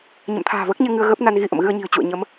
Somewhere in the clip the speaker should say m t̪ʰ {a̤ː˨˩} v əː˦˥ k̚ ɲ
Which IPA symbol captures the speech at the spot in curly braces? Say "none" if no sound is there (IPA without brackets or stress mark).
a̤ː˨˩